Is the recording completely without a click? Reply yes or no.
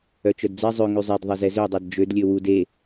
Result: yes